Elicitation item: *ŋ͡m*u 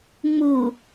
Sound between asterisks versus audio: correct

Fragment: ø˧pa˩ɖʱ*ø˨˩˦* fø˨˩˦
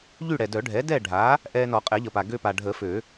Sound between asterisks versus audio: incorrect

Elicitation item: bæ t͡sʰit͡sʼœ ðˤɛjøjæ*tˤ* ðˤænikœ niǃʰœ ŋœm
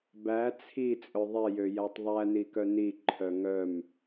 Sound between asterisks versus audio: correct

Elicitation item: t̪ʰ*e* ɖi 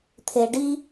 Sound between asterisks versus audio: correct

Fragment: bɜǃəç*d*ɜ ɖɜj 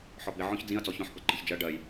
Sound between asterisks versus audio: incorrect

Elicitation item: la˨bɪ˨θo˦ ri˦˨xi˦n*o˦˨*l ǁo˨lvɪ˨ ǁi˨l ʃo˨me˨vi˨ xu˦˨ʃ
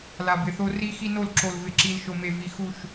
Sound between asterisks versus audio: correct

